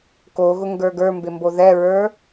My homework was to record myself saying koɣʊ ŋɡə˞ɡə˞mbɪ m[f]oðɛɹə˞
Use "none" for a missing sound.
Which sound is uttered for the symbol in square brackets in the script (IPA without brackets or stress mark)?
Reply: b